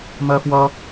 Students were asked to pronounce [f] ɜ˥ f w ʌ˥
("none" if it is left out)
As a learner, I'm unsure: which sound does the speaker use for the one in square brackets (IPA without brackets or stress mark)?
m